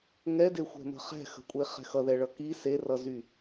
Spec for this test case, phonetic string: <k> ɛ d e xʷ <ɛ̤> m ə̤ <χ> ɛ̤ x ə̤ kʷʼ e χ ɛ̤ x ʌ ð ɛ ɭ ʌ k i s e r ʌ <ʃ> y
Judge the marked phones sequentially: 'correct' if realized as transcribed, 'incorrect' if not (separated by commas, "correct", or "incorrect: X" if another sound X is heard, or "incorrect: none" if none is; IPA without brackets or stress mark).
incorrect: ŋ, correct, correct, incorrect: z